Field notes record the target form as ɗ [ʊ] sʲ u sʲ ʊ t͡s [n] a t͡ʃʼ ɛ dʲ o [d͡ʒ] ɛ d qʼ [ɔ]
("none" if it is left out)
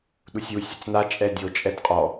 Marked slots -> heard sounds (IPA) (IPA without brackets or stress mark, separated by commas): u, n, t͡ʃʼ, ɔ